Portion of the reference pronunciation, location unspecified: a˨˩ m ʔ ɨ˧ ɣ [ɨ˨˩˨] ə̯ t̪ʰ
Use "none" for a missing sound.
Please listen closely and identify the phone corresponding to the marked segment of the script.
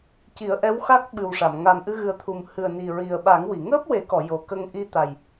ɨ˨˩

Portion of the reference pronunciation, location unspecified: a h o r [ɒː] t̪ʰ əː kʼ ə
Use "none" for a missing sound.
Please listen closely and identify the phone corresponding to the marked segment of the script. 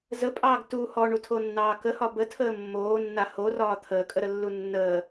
ɒː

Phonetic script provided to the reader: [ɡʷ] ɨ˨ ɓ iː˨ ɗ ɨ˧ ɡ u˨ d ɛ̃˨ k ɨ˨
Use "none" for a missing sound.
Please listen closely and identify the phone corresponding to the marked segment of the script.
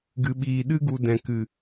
ɡ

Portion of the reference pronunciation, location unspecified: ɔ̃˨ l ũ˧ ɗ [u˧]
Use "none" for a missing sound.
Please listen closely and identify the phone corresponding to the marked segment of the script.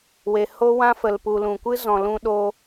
o˧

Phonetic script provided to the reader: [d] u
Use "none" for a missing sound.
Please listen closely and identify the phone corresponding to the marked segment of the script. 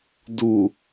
d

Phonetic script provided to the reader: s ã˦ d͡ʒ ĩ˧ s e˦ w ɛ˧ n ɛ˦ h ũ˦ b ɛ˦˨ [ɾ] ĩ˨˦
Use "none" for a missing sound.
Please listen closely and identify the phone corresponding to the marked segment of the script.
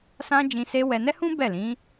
l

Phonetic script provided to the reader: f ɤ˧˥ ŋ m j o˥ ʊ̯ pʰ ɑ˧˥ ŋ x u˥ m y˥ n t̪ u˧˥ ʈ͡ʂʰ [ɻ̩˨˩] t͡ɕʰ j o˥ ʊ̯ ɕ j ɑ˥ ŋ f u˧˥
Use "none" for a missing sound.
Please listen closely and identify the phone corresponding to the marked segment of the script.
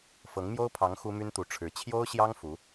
ɻ̩˧˥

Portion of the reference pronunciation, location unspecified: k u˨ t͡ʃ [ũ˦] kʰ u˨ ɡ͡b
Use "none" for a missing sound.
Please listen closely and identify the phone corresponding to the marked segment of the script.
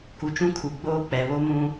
ũ˦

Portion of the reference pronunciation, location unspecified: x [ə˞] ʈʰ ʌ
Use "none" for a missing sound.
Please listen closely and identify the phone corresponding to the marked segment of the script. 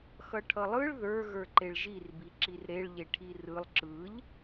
ʌ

